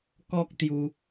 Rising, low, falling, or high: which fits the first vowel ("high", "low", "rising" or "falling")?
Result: high